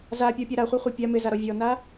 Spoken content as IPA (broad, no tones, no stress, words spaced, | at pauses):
zapʲɔpʲa ɾaχʷaχʷa pʲa mɪzaɾɔ vʲɔna